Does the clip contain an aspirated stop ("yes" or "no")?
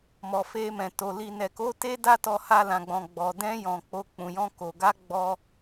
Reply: no